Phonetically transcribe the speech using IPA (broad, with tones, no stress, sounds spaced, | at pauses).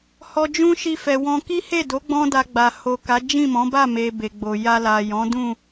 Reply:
h ɔ˨ d͡ʒ ũ˧ ʃ i˧ f ɛ˨ w ɔ̃˧ k i˦ h e˦˨ d o˨˦ ɡ͡b ɔ̃˦ d a˧ ɡ͡b a˨ h o˨ k a˨˦ d͡ʒ ĩ˦˨ m ɔ̃˨˦ b a˦˨ m e˨ b e˨ ɡ͡b o˨ j a˧ l a˨ j ɔ̃˨˦ d ũ˦˨